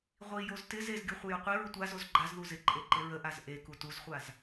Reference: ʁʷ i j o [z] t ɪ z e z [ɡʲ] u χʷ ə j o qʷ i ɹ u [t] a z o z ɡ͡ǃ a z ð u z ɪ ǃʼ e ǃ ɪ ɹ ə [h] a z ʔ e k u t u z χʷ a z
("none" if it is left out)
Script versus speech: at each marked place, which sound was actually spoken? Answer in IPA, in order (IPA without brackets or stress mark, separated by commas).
z, ɡʲ, tʷ, ʔ